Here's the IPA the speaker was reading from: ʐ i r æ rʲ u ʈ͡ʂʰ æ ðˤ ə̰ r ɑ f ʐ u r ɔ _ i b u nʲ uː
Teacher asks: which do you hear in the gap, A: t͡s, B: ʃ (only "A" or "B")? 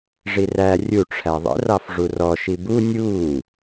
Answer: B